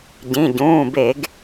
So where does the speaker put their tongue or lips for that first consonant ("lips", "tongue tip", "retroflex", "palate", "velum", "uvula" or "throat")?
palate